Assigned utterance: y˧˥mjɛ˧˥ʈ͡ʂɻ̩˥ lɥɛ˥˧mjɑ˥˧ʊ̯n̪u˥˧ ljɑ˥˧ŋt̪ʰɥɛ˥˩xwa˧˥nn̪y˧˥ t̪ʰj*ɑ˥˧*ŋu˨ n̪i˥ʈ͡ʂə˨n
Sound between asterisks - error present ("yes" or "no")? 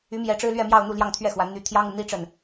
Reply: yes